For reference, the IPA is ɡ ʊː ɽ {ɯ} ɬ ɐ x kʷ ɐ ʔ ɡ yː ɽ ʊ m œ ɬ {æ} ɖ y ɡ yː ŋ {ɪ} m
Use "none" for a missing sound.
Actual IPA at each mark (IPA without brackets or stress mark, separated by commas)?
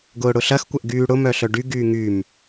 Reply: ʊ, œ, y